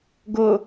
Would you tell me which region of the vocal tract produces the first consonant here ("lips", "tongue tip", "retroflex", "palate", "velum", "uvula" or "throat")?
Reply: velum